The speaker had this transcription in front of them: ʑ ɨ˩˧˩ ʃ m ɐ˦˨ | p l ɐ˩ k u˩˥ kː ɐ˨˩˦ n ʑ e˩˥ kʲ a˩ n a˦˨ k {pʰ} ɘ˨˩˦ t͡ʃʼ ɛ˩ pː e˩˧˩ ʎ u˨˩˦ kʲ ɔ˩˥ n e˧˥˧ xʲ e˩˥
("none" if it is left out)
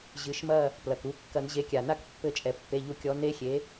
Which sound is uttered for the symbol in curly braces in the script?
pː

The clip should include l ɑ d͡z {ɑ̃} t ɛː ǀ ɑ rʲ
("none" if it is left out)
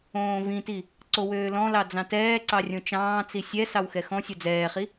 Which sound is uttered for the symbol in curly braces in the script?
ɑ̃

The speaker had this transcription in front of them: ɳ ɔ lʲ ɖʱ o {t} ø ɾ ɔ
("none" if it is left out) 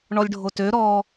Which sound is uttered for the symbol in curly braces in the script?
t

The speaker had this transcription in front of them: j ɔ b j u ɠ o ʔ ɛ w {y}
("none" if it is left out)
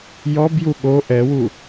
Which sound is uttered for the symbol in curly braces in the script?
u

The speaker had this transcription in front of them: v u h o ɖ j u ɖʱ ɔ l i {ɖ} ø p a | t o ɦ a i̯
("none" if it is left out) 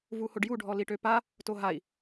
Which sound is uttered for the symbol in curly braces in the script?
ʈ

